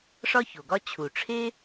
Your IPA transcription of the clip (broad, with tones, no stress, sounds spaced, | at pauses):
ʂ ɒ˥ ç o˩ ɡ ɒ˥ t͡ɕʰ u˩ ʈ͡ʂʰ e˥